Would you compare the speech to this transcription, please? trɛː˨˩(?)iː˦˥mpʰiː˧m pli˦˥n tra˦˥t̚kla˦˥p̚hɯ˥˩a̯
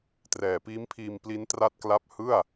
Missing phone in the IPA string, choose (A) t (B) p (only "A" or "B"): B